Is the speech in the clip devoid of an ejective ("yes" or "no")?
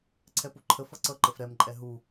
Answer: no